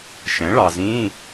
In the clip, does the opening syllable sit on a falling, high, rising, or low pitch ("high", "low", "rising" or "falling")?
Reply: rising